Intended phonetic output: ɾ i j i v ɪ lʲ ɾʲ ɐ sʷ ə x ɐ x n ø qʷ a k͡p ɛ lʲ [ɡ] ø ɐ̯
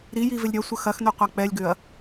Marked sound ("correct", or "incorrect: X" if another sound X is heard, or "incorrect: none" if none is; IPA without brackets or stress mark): correct